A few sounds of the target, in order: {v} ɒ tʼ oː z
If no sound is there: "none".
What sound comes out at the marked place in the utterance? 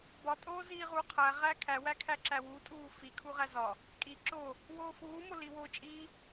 b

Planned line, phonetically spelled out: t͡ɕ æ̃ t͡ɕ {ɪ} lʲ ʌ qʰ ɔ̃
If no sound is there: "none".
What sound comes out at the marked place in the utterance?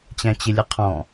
ɪ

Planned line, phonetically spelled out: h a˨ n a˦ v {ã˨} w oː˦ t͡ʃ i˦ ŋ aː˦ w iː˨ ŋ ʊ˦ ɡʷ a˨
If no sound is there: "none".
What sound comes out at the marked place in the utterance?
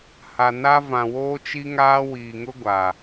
ã˨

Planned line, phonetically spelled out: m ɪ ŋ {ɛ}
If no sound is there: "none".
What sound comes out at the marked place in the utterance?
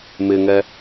ɛ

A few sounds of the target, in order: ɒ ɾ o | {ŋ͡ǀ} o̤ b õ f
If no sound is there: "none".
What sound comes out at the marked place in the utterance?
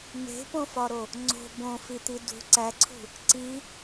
ŋ͡ǀ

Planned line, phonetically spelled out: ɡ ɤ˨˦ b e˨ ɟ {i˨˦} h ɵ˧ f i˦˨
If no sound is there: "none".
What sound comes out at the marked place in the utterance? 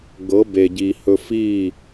i˨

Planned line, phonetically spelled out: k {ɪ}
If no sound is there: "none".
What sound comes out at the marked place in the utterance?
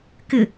ɪ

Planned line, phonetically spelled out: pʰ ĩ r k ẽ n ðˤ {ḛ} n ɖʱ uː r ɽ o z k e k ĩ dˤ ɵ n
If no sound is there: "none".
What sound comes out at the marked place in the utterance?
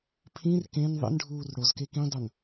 ḛ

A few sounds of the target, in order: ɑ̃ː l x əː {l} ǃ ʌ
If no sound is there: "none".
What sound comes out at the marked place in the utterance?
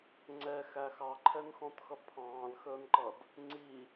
n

